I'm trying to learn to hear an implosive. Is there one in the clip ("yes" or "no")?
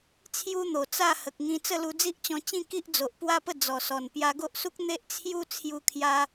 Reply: no